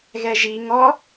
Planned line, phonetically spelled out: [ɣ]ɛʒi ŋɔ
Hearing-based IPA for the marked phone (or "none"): ɣ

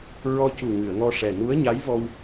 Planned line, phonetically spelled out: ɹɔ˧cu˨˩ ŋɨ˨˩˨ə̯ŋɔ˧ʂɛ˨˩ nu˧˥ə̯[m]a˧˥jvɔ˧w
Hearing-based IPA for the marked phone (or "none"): ɲ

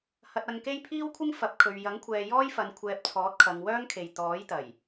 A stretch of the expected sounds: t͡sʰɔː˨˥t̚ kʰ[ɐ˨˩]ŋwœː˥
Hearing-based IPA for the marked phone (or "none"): ɐ˨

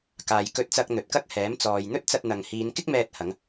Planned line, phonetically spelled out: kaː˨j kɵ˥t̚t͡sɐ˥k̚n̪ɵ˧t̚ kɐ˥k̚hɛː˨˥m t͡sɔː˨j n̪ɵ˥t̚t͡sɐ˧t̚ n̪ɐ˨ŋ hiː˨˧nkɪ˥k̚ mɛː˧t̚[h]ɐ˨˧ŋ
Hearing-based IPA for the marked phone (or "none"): h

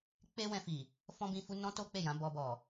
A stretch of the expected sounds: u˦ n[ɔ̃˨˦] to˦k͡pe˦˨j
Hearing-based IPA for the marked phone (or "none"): ɔ̃˦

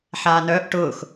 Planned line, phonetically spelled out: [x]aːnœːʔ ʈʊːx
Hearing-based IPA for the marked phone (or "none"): ħ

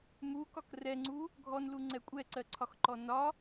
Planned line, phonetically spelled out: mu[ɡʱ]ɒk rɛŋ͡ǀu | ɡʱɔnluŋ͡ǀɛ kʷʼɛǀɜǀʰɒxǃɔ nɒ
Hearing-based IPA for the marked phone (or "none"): k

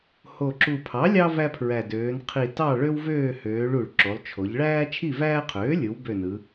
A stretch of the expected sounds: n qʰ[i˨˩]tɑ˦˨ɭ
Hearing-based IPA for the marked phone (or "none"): i˨˩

